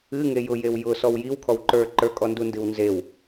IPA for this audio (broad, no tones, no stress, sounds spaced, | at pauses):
ɨ ŋ e j ʊ j e w j ʊ s ɔ w j i w kʰ ɔ w ǃ ə˞ ǃ ə˞ kʼ ɔ n d u n d ɨ w n z e w